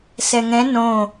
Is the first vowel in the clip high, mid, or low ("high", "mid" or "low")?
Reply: mid